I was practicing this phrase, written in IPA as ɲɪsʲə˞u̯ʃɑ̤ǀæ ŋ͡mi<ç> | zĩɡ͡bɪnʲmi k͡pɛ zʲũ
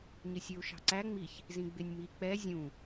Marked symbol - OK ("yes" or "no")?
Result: yes